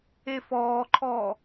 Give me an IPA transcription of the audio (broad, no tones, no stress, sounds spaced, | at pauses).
e f ɔː ǃʰ ɔː